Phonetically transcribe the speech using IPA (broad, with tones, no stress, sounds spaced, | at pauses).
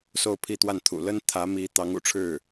s o˥˧ ʊ̯ pʰ i˥˧ t̪ w a˥˩ n t̪ʰ ṵ˨˩ l ə˥ n t̪ʰ ä˧˥ m i˧˥ t̪ ɑ˧˥ ŋ ṵ˨˩ ʈ͡ʂʰ ɻ̩˥˩